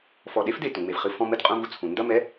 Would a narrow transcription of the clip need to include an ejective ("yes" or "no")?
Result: yes